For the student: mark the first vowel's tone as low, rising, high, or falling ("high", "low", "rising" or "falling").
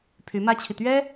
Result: rising